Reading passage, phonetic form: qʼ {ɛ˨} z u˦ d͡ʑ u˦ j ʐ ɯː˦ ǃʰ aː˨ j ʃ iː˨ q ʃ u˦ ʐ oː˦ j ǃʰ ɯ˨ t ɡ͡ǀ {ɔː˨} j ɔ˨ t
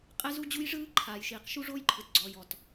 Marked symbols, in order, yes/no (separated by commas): no, yes